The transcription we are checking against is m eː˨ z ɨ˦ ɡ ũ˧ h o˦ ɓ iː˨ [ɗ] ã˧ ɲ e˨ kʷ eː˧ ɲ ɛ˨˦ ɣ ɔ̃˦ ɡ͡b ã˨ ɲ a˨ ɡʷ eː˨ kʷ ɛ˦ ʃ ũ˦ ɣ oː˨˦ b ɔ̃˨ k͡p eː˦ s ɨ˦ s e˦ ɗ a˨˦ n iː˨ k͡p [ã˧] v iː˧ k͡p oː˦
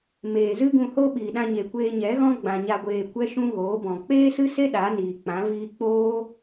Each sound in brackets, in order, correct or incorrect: correct, incorrect: ã˨˦

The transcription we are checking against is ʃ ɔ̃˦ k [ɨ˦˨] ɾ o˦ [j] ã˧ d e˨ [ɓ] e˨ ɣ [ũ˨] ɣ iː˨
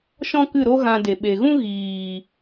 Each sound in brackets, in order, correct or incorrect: correct, incorrect: ɣ, correct, incorrect: ũ˦

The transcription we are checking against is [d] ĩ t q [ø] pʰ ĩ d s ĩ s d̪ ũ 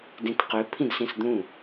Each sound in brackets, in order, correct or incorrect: correct, correct

